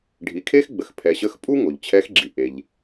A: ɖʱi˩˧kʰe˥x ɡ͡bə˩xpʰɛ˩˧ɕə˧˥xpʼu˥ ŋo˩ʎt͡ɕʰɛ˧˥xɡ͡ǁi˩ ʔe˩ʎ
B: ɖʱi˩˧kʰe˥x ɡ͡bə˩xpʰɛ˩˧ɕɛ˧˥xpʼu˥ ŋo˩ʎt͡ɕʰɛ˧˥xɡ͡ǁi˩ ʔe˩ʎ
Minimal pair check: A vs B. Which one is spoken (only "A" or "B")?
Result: A